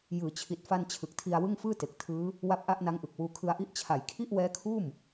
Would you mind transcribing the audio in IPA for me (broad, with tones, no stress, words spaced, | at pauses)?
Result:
jɯː˩˦ t͡ɕʰi˨˩t̚fa˧n t͡ɕʰɯ˨˩k̚tʰi˧a̯wɯ˥˩ŋ fɯː˥˩te˨˩k̚ tʰɯː˦˥ | wa˦˥p̚ʔa˦˥ʔ na˦˥ŋʔɯ˨˩k̚wuː˧kʰɯ˧a̯ ʔi˦˥ʔt͡ɕʰa˨˩j kʰi˥˩ʔwɛː˦˥kʰuː˥˩m